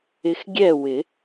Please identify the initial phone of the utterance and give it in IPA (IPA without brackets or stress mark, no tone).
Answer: ɪ